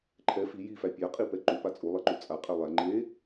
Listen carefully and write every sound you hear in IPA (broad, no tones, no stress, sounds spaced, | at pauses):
ǃʰ ɛ f i j i f æ pʲ a qʼ i p ɛ ǃ u p a t͡sʼ u lˠ ɛ ǃ u t͡sʼ a qʼ ɛ lˠ æ ŋ͡ǃ e